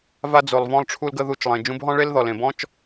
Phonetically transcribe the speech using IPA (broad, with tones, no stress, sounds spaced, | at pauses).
v a˧ d͡z o˨ lˠ v ɔ̃˧ lˠ ʈ͡ʂʰ u˧ l ɡ ə˧ ð u˧ t͡ʃ lˠ ẽ˨ d͡ʒ ũ˧ b ɦ ɔ̃˦ ɭ e˦ l ð ɔ˨ l ẽ˨ b ɔ̃˦ t͡ʃ